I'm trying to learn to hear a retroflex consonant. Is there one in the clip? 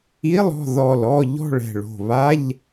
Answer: yes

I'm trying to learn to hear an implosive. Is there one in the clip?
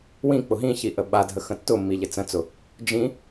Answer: yes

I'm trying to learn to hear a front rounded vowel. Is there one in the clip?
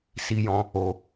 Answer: no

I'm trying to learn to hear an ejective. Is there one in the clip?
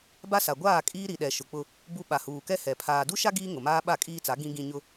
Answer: yes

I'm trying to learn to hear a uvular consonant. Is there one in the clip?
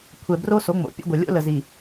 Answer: no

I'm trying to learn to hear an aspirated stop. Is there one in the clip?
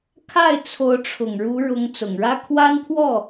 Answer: yes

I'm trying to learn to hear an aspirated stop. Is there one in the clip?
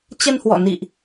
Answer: no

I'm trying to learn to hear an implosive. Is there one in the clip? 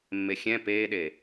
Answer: yes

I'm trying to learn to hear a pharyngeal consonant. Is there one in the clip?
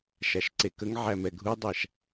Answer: yes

